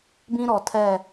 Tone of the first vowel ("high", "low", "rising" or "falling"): high